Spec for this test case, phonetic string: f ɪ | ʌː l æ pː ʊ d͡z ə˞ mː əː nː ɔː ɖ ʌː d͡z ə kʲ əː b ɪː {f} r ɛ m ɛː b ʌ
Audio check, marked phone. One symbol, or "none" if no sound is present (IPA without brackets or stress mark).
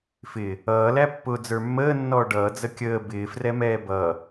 f